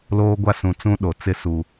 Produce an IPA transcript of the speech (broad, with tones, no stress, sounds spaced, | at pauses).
l oː˦ ɡʷ a˦ s ũ˨ t͡s ũ˦ ɗ o˨ t͡s ɪ˦ s u˦